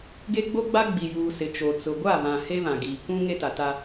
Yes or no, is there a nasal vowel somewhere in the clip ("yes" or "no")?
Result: yes